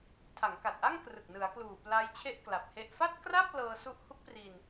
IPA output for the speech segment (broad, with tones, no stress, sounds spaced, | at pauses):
tʰ a˩˦ ŋ k a˨˩ t̚ ʔ a˥˩ ŋ k r ɯ˨˩ k̚ n ɯ˩˦ a̯ k l uː˨˩ p l a˦˥ j t͡ɕʰ e˥˩ ʔ k l a˨˩ p̚ h e˥˩ ʔ f a˥˩ t̚ k r a˥˩ p̚ l ɤː˧ s u˦˥ ʔ h u˦˥ k̚ p r i˧ n